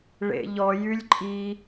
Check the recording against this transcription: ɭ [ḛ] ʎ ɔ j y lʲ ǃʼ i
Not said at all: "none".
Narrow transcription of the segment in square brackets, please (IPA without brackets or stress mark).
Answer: ḛ